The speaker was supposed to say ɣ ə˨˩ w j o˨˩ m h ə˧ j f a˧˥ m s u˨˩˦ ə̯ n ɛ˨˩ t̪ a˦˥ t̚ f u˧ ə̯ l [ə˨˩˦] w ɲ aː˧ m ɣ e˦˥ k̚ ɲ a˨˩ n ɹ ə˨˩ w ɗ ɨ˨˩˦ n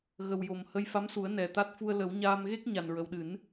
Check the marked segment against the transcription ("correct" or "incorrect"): correct